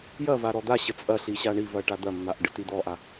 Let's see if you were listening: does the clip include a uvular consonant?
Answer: no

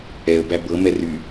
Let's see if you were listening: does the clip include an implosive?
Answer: no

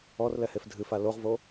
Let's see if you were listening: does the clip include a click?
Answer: no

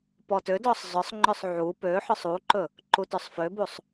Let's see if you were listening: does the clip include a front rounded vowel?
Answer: yes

